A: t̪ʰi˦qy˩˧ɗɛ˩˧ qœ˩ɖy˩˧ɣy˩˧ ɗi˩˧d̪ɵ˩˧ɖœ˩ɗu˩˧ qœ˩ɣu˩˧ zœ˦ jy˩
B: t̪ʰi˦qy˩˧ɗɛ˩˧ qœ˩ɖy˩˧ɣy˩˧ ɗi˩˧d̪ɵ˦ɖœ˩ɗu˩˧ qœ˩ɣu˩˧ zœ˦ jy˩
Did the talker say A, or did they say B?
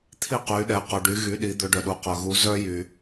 A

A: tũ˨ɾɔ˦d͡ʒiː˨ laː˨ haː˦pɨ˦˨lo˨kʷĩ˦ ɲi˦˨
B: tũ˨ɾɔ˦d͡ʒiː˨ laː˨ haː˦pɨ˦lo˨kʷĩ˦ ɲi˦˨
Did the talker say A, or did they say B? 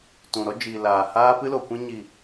B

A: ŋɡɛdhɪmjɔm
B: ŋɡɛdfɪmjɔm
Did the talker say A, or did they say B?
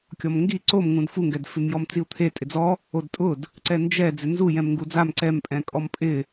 B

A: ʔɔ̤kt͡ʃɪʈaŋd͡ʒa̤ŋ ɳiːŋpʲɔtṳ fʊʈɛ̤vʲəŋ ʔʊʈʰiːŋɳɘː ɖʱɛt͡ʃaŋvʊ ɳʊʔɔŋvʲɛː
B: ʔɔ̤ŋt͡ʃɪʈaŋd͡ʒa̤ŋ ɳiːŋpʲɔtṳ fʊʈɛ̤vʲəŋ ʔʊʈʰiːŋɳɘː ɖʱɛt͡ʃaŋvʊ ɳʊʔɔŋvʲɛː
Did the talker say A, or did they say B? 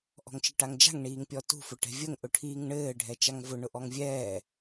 B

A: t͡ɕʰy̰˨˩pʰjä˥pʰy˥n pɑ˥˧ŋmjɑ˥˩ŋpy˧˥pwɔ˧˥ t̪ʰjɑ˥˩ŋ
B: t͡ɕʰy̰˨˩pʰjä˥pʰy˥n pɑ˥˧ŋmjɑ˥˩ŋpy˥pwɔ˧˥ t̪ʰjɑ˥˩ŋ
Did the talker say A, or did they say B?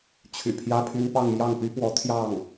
B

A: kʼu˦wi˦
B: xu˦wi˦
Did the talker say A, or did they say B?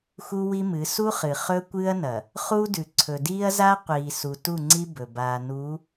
B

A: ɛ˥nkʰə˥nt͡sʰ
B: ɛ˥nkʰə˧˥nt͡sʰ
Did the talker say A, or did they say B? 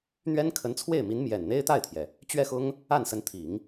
B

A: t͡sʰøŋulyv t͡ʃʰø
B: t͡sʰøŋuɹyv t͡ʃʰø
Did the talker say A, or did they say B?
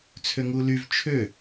A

